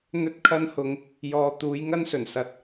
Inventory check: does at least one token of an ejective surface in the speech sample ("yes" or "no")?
no